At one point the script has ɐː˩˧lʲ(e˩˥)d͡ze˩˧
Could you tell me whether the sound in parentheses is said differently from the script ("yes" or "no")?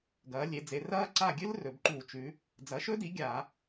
yes